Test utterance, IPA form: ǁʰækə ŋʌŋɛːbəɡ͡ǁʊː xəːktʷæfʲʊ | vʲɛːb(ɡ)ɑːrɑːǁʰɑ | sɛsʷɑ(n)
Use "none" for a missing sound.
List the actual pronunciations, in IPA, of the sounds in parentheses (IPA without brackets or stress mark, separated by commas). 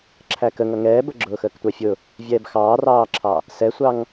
x, ŋ